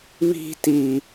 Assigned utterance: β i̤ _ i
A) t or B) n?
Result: A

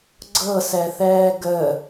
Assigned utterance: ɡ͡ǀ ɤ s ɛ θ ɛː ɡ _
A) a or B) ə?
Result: B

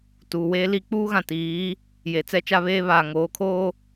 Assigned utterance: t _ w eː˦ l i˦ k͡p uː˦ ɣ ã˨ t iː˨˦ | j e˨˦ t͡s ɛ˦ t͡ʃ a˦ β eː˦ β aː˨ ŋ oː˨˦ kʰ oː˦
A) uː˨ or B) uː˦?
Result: A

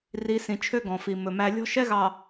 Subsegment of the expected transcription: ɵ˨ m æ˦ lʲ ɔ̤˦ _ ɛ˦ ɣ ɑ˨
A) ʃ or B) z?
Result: A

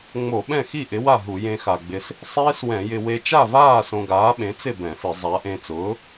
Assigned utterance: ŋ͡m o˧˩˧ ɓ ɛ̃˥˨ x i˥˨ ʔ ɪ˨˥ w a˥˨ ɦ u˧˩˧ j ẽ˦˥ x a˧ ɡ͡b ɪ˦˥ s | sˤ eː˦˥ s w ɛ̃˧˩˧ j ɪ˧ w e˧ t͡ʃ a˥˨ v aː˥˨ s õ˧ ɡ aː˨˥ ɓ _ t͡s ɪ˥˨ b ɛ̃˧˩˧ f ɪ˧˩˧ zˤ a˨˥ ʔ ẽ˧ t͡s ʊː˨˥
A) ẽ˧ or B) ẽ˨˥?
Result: B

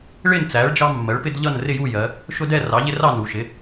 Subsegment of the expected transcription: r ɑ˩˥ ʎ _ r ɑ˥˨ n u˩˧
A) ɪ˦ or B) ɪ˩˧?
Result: A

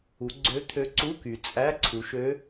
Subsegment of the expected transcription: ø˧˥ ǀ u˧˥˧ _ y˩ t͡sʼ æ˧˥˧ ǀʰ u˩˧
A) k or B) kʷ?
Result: A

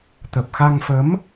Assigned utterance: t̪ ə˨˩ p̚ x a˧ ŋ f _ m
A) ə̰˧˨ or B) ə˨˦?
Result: B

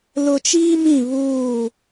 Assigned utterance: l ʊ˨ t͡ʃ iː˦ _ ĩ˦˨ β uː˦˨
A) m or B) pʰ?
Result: A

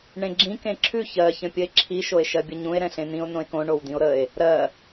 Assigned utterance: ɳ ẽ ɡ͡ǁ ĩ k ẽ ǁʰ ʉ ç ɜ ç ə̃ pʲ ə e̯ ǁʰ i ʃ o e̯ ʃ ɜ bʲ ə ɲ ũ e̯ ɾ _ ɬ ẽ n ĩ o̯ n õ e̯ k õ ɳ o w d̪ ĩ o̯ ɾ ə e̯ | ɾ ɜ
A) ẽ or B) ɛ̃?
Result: B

